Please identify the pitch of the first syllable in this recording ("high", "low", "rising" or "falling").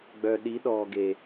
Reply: low